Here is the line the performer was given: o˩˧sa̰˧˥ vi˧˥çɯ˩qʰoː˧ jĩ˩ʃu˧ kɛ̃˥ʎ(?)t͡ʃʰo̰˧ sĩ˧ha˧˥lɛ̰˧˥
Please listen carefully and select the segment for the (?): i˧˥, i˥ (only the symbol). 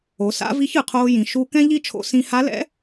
i˥